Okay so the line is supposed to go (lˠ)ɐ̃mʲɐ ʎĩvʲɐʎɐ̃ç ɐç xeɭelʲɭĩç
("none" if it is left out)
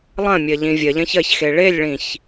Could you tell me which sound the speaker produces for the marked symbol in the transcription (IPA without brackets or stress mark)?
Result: lˠ